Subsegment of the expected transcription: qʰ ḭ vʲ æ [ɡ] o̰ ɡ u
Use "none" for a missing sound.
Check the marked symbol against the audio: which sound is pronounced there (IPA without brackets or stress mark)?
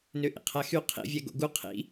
ɡ